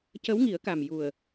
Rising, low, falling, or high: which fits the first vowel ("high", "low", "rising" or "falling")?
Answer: rising